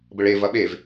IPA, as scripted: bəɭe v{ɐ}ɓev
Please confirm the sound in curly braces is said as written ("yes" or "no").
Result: yes